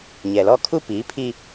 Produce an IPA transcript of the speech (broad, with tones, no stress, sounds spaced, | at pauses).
ɲ ɛ˨ l ɔ˦ kʰ u˦ p iː˨˦ pʰ i˦